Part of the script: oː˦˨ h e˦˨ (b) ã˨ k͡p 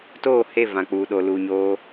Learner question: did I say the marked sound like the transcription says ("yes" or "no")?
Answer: no